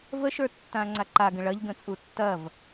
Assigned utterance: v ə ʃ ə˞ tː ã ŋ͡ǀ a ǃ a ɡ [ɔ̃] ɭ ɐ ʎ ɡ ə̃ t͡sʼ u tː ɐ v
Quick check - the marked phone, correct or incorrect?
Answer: incorrect: ə̃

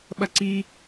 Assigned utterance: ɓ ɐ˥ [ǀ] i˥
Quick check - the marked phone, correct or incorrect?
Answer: correct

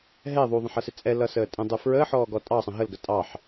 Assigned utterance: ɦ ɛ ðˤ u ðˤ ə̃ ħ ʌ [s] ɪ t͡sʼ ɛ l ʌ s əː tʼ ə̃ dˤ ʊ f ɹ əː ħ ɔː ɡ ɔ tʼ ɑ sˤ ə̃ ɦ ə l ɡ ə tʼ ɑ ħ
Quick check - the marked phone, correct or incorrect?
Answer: correct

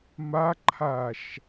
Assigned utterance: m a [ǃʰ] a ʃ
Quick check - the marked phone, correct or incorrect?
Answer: correct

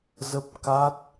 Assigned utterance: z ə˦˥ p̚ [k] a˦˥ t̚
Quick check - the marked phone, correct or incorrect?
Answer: correct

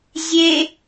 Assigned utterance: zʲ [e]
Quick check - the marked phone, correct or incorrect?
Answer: correct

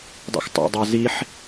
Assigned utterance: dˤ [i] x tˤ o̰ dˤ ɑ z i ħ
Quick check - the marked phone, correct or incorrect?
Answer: incorrect: ḭ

